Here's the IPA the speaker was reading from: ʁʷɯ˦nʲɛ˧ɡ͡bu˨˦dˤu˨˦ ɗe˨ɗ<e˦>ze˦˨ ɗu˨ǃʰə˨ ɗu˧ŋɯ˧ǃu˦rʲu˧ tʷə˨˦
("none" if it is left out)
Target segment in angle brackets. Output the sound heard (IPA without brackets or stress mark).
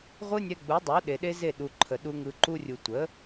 e˦